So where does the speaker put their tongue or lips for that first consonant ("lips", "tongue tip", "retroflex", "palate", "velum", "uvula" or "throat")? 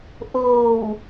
throat